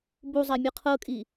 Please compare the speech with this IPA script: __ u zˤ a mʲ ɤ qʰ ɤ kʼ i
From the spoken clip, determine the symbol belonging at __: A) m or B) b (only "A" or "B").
B